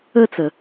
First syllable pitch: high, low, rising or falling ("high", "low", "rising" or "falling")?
high